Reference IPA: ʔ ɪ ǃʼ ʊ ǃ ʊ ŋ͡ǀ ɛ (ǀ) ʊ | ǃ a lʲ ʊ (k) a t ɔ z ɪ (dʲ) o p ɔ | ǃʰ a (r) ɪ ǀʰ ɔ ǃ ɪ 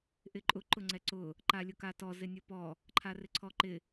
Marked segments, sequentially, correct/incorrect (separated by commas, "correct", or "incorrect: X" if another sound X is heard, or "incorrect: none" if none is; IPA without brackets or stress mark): correct, correct, incorrect: nʲ, correct